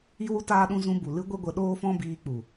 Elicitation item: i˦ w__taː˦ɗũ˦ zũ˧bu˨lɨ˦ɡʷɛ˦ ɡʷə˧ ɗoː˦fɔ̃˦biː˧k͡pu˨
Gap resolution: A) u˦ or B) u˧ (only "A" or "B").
A